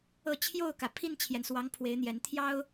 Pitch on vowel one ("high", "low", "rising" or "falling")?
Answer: falling